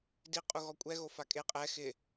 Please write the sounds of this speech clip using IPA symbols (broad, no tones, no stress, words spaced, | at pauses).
di qʼuɣɔkʷʼɛ ɣofakʼe qʼɛ xɪ